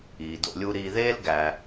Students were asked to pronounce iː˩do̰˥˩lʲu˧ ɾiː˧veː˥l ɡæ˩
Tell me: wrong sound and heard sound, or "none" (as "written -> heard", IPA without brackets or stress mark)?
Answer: v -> ð